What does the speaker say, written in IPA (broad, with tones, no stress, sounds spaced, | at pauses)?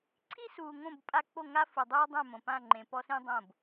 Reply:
ǀʰ i˦ s uː˨ ŋ õ˦˨ b pʼ a˦ k͡p o˦˨ ŋ a˦ f u˨ dˤ uː˦ dˤ ɛ̃˦˨ m õ˨ p ã˦˨ ŋ͡ǃ ẽ˨ p ɔ˦ s ĩ˦ dˤ õ˦˨ b